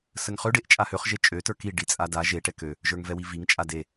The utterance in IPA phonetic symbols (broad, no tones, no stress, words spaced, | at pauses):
səŋχø ɖeʔt͡ʃʼahøχ ʒet͡ʃʼø tə˞ki ɖit͡sʼada ʒe ʈɛkø | ʒə˞ŋvɛwiviŋ t͡ʃʼade